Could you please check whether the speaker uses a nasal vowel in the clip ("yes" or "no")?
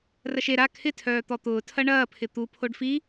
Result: no